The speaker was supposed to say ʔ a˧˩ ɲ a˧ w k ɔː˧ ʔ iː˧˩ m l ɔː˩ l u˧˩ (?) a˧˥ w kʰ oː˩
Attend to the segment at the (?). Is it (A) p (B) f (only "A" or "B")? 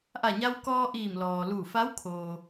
B